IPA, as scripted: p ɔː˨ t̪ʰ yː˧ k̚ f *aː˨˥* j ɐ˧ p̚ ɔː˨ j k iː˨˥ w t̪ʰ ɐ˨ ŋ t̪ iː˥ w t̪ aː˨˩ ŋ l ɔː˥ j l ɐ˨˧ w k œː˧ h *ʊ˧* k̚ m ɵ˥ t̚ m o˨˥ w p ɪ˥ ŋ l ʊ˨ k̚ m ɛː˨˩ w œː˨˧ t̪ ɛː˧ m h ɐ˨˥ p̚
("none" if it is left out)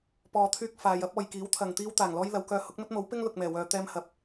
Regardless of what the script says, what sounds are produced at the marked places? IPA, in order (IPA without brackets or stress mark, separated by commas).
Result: aː˨˧, ʊ˨˥